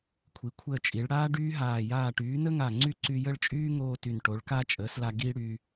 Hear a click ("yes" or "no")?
yes